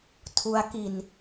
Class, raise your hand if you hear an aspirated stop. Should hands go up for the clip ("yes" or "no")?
yes